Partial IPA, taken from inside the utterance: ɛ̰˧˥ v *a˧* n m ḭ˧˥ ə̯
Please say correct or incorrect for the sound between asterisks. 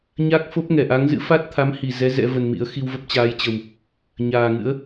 incorrect